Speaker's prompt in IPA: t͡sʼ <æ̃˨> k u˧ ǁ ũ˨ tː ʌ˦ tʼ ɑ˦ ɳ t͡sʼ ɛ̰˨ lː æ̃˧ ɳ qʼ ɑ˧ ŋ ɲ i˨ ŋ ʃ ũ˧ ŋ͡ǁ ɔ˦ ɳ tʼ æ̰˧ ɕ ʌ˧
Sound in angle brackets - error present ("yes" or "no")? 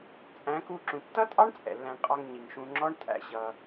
yes